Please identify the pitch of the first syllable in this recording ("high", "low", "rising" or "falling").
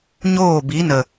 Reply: falling